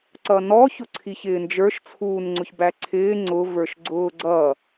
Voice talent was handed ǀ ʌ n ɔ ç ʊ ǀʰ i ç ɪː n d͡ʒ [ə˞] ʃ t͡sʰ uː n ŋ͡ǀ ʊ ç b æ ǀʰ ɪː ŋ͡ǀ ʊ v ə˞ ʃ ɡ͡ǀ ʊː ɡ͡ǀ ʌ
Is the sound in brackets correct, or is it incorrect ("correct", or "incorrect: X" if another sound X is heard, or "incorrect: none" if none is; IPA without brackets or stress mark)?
correct